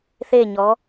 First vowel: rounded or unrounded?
unrounded